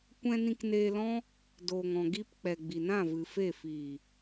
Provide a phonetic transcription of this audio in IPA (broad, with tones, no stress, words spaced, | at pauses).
kʷɛ̃˧nĩ˧kneː˧lɔ̃˦ | doː˨ŋɔ̃˨ɡi˧p k͡pɛ˨ɡ͡bi˨nã˦˨ vɨ˨fe˦˨ fiː˨